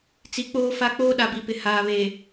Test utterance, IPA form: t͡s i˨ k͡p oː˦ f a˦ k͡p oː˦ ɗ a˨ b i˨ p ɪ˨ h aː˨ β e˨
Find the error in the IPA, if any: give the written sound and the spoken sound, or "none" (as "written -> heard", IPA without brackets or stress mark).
none